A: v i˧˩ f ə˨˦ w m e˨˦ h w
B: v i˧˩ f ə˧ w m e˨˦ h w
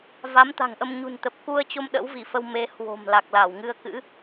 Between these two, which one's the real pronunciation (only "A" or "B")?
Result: B